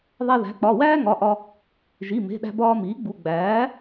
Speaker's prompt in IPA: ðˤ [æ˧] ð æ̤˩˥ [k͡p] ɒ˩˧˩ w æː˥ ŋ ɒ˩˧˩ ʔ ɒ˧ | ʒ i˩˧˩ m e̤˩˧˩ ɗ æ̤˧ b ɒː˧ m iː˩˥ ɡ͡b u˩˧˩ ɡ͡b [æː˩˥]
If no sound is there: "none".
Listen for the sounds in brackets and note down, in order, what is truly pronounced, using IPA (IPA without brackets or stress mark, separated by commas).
æ˧, k͡p, æː˩˥